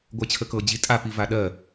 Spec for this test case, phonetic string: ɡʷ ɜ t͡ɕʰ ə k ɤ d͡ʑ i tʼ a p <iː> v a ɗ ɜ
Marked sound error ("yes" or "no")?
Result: yes